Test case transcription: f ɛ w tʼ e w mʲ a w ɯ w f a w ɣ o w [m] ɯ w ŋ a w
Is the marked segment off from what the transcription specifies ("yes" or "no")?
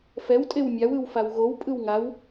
yes